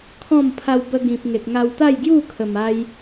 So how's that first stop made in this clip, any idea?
aspirated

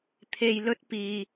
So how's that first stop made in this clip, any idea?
aspirated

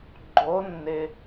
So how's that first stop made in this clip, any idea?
click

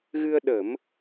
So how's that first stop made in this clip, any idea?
implosive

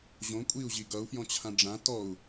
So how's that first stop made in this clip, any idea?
ejective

